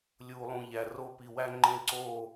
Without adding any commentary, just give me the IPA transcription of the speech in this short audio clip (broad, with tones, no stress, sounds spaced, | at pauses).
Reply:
lʲ uː˨ lˠ ũ˨ ʎ æ˨ r o˧ p i˨ w æ˧ ŋ͡ǃ ẽ˧ ǀ oː˦˨